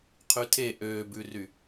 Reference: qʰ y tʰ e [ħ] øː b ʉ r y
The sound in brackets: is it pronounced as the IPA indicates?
no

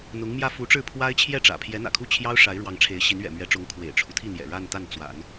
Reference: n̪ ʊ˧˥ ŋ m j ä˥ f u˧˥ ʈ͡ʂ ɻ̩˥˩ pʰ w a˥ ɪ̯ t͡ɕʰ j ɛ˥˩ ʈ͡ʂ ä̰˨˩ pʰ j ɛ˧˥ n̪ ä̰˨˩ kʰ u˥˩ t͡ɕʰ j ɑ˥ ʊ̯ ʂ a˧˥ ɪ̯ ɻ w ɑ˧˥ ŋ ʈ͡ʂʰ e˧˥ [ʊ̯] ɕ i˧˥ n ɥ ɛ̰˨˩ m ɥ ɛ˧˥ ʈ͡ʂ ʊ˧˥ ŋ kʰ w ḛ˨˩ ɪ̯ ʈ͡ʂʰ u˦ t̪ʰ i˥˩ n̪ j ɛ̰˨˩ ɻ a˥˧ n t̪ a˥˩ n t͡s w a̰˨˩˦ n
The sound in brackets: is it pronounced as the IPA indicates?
no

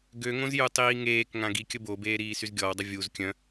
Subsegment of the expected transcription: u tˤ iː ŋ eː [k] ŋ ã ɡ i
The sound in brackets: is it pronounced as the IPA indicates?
yes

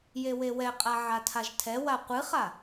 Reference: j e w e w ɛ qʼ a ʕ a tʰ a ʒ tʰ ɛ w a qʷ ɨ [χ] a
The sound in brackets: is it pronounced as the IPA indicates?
yes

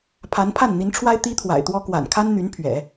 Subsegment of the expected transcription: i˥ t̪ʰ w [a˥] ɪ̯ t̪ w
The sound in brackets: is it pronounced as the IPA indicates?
no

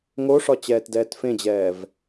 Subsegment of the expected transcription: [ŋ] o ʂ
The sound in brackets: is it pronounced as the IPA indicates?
yes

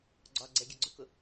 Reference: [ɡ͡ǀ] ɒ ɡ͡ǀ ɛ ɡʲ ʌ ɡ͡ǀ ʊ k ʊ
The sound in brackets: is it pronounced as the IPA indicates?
yes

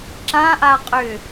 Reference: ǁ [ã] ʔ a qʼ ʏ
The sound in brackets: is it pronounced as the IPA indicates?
yes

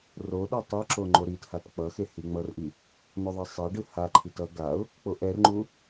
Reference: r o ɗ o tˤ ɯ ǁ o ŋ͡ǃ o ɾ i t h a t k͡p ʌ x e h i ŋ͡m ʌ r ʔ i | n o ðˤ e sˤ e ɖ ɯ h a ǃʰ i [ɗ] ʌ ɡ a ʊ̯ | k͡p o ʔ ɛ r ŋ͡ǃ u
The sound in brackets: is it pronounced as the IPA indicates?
no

